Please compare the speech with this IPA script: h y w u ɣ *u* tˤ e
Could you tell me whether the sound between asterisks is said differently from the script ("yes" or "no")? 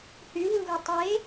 no